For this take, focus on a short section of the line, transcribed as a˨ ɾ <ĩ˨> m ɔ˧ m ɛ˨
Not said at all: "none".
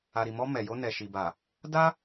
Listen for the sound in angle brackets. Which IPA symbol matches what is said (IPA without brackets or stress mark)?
i˨